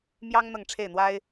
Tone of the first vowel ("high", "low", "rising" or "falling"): high